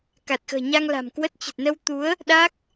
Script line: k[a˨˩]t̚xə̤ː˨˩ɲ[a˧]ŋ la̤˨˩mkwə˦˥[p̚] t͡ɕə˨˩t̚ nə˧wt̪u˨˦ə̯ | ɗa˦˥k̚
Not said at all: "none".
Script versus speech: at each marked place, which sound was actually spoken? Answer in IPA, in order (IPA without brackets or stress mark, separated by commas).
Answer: a˨˩, a˧, t̚